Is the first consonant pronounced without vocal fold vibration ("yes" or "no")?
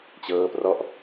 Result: yes